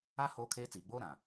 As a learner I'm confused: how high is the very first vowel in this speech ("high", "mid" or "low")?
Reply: low